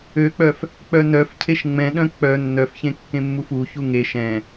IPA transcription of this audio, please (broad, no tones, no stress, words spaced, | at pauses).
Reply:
øk͡pœf | k͡pœnœfcʰeʃ ŋ͡mɛ̃ɗœ̃ k͡pœ nːœfçẽ kːẽmːufuçu ŋeʃ ɛ̃